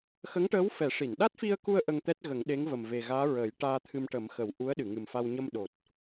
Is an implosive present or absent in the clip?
present